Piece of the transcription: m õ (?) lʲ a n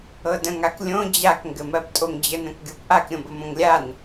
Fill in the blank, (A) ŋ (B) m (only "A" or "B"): A